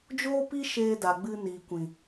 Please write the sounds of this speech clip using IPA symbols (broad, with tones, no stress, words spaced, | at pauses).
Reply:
d͡ʒoː˦pi˦ ʃeː˧da˨ ɡ͡bɨ˧niː˨kʷĩ˨